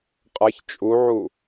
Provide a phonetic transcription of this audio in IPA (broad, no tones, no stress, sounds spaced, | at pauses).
qʼ a ç t͡ʃʼ u ʕ u